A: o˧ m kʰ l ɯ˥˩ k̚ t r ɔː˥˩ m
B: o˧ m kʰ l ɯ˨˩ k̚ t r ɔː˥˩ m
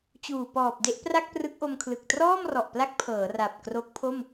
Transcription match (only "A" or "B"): B